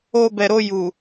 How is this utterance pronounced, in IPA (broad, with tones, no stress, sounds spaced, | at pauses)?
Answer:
o˧ b ɛ˨ ɾ o˧ j u˨